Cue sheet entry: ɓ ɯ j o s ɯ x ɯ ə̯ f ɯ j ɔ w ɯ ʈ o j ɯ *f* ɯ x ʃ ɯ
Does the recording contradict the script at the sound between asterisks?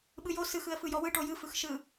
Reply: no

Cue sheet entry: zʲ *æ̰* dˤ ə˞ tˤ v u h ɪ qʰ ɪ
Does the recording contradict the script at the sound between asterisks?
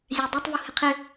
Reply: yes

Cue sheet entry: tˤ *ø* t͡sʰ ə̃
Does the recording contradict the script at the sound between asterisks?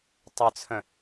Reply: yes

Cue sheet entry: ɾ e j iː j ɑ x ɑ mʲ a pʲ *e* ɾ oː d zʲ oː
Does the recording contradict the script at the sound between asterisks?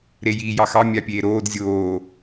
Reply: yes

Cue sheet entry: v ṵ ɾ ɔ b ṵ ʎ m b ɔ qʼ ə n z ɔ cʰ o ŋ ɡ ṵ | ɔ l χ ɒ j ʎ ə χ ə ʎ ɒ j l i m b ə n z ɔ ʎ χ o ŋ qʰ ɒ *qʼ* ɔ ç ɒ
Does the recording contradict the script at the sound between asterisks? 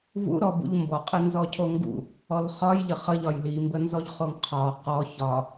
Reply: yes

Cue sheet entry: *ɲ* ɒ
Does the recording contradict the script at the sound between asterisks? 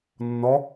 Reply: yes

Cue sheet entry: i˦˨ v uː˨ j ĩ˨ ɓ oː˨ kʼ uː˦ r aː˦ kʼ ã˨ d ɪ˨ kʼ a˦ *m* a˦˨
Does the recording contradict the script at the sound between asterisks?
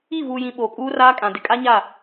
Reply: yes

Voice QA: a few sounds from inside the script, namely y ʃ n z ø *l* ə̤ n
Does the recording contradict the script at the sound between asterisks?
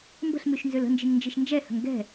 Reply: no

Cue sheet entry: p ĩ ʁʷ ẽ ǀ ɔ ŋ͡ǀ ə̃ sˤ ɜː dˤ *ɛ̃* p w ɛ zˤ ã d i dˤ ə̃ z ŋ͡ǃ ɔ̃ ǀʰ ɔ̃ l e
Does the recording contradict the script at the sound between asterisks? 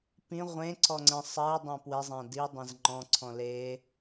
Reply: yes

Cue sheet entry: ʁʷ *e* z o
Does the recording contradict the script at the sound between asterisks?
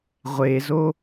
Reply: no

